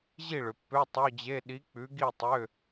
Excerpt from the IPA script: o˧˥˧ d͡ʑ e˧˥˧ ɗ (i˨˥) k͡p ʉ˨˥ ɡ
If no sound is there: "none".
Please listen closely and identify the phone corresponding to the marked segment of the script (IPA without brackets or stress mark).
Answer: i˨˥